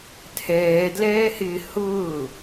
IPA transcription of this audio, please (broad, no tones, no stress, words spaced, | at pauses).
tʰɛːdlɛːhɪː hʊː